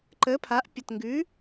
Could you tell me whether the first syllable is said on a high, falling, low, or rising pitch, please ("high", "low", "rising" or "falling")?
rising